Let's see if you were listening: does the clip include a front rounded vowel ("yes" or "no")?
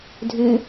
yes